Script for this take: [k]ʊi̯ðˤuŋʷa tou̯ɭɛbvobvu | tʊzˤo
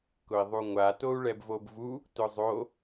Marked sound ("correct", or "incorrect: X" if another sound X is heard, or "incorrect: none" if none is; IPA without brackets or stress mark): correct